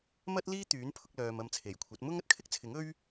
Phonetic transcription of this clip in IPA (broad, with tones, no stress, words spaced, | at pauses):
mɐ˥t̚ liː˥ t̪yː˨˥n pʰʊ˧k̚lœː˨m ɐ˧mt͡sʰe˨˩jkʷʰɐ˨˥t̚ mʊ˥ŋ ɐ˥t̚kʰɪ˥k̚t͡sʰɪ˨˥ŋ ɵ˥ɥ